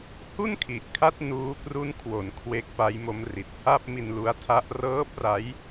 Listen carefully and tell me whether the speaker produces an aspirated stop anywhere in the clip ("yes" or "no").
yes